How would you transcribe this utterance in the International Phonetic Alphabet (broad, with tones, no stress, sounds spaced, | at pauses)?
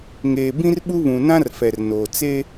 ŋ eː˨ b ĩ˦ r ɓ u˦ β ũ˨ n ã˦ r f ɛ˨ r n oː˨ t͡s e˦